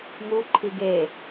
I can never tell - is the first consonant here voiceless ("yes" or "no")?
no